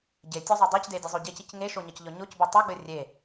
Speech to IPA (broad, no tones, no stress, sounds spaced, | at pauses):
ɟ e tʲ ɔ zˤ o dˤ i c d e dʲ ɘ zˤ o ɟ e c i c ŋ e ʃ o ɲ ʌ c ʎ ɔ ɲ o c b e tˤ e ɡ͡b ɘ rʲ e